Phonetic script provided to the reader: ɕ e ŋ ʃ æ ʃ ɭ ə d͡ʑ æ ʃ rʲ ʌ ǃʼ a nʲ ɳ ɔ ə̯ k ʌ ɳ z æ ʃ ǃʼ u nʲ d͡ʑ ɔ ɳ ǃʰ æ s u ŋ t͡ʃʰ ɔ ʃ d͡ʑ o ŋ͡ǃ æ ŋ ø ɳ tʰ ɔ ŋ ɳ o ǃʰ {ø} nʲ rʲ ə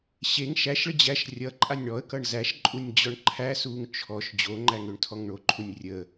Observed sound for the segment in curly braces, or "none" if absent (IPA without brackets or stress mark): u